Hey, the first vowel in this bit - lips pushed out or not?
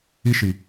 no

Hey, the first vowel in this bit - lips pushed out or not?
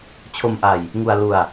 yes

